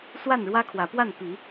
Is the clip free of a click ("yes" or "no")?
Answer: yes